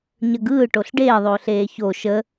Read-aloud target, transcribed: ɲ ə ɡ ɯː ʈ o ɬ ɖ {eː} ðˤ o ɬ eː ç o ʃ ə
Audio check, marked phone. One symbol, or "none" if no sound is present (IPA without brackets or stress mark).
eː